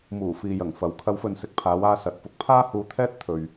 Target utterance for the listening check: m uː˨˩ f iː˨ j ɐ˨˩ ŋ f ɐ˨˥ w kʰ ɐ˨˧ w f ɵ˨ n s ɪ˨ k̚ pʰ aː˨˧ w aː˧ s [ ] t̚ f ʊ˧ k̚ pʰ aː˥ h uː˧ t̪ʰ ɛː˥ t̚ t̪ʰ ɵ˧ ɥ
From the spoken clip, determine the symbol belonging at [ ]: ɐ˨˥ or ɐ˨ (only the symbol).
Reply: ɐ˨